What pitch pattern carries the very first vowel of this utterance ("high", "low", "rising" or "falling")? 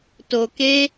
low